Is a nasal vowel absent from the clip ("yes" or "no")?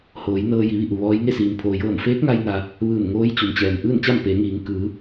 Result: yes